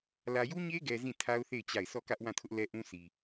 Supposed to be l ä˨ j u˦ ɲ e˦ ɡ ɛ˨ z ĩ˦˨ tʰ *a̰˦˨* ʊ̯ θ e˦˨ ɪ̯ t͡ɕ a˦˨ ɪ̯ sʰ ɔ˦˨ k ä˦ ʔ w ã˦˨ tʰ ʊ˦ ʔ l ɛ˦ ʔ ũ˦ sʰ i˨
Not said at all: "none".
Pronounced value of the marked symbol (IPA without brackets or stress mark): a˦